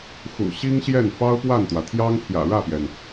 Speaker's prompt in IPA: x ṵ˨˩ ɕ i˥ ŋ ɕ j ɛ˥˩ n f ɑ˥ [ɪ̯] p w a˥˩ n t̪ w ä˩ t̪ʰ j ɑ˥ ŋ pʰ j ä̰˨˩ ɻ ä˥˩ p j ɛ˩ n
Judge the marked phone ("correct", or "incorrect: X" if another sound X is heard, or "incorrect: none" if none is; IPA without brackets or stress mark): incorrect: ʊ̯